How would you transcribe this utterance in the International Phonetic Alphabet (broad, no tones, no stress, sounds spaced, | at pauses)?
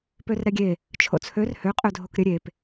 p ø r ɾ ɛ ɡʲ e | t͡ʃʰ o̰ t͡sʰ ø r h ø qʼ ø dʱ o k ɾʲ ə ɾʲ e p